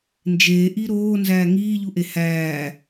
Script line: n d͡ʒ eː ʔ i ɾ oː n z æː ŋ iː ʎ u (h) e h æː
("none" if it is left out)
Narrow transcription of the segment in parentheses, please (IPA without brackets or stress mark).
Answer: ʔ